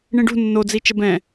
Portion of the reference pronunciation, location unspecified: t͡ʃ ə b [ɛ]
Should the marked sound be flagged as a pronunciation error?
yes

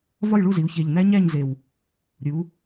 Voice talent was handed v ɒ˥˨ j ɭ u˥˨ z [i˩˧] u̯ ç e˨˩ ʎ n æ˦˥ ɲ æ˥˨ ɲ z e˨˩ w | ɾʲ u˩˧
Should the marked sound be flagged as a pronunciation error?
no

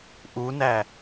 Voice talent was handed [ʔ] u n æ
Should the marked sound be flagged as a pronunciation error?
no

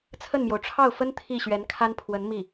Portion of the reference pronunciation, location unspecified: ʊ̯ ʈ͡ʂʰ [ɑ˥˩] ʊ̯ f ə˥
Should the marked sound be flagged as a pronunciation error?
no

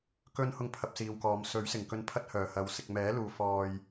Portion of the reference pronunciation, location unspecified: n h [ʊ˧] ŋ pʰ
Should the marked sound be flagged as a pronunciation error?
no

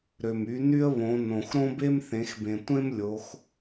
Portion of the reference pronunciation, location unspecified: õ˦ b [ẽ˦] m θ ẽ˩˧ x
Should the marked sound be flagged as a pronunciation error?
yes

